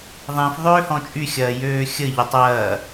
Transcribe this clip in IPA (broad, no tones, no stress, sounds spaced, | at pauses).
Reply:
ðˤ ĩ f ðˤ øː h ɔ̃ t͡ʃʼ y xʲ ɐː j øː xʲ ə ʎ ʏ tˤ ɐː